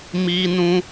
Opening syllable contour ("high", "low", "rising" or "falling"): high